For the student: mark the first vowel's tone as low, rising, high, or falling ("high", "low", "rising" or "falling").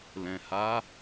low